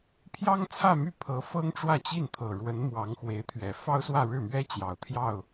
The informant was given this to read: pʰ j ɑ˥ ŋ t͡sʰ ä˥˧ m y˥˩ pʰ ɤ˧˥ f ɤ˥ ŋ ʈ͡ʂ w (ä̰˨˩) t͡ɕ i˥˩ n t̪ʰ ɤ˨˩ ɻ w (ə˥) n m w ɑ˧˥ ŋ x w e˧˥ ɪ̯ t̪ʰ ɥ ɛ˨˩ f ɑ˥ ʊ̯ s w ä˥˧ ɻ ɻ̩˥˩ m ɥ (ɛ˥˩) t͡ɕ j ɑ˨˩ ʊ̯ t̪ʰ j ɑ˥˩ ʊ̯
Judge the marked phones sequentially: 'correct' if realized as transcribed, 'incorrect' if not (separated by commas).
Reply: incorrect, incorrect, incorrect